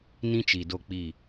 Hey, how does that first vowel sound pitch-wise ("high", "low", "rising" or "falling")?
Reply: high